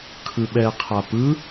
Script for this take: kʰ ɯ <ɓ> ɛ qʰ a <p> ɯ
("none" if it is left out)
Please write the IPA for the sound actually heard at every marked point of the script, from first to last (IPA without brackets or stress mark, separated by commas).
ɓ, p